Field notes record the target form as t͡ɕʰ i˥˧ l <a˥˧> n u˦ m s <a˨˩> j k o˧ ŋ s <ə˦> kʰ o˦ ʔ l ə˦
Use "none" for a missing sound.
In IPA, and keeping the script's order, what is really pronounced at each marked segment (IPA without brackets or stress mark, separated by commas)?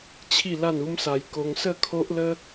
a˥˧, a˧, ə˥˧